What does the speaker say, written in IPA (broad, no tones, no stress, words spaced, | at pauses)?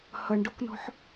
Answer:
hʌɳɖoknɔ̤ħ